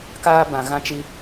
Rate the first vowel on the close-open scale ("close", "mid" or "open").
open